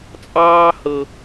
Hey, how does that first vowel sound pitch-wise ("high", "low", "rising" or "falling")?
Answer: high